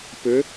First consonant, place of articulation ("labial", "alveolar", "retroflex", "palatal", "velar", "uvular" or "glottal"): labial